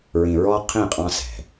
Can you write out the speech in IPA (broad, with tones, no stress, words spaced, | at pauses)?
ɹĩ˨ɹɔ˦ qʰĩ˦˨qʼɑ̃˦ sɛ̤˨